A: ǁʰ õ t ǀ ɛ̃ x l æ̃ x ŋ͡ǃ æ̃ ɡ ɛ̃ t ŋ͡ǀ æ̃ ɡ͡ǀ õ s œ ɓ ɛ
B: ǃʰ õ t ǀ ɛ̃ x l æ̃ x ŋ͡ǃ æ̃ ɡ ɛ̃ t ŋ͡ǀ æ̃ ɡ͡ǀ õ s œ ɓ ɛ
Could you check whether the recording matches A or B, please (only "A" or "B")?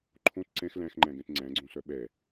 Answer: B